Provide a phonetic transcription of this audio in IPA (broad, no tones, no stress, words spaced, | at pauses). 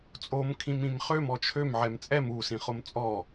t͡sʼom kʰĩmĩmχøm ɔt͡ʃʰøm ʕɛmt͡sʼɛm u sĩχomt͡sʼɔ